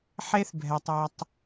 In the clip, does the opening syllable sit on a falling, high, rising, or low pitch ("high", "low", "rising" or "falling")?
high